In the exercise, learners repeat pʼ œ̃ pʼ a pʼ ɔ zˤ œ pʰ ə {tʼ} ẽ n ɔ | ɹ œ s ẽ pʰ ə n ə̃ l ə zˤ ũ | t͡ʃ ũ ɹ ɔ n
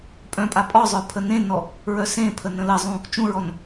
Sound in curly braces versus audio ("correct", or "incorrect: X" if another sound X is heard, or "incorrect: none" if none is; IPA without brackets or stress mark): incorrect: n